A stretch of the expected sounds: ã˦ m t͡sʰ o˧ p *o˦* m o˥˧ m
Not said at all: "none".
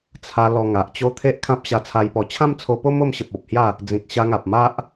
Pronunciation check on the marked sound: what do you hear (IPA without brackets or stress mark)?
o˦